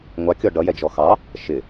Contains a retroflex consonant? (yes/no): yes